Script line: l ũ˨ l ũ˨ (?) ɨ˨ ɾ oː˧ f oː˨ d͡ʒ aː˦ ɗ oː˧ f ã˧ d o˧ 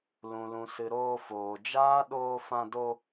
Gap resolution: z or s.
s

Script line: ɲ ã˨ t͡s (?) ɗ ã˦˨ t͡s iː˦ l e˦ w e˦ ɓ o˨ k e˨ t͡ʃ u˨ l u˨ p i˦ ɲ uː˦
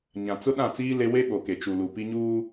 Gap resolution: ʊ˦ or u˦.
ʊ˦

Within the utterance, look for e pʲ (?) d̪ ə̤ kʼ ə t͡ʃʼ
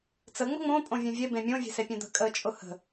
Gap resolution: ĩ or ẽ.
ẽ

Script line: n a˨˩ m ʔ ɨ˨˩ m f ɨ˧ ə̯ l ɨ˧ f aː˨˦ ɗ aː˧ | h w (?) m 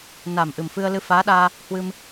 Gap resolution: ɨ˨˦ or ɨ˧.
ɨ˧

